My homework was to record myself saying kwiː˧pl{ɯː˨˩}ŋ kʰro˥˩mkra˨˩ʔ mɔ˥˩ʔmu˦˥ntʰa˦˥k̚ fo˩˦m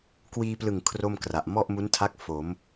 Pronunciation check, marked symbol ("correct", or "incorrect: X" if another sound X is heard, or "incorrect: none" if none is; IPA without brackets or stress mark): incorrect: ɯ˨˩